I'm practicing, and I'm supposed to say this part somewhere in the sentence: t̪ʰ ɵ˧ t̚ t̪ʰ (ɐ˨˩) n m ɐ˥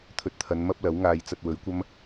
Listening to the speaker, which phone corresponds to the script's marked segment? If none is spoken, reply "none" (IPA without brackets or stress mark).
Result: ɐ˨˧